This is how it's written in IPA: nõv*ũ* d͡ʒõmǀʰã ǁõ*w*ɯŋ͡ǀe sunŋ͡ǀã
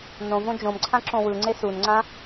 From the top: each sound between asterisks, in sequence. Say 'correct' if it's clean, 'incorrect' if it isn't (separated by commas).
incorrect, correct